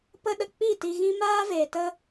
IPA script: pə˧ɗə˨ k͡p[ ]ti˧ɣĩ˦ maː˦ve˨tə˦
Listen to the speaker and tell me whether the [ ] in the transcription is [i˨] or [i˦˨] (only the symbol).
i˦˨